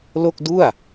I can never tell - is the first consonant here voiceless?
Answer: no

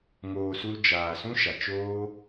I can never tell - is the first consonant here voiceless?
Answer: no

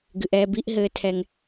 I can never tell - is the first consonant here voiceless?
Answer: no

